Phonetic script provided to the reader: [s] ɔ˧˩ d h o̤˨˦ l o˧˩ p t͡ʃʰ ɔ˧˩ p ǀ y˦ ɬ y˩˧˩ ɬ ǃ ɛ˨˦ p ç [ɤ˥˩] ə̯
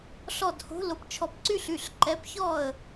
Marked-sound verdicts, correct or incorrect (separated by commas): incorrect, incorrect